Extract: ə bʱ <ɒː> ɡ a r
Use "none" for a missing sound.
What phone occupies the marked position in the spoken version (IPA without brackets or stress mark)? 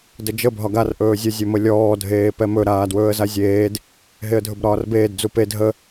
ɒ